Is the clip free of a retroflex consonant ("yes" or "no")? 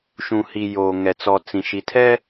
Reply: yes